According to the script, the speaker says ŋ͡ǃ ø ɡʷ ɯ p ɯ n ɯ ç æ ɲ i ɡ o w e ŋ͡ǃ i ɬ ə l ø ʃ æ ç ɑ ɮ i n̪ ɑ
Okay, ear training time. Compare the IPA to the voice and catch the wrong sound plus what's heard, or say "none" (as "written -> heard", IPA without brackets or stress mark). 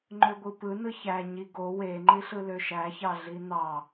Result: ə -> ɯ